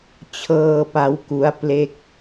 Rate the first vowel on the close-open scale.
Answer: mid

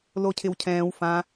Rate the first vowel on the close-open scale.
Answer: mid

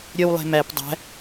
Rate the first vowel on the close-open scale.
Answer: mid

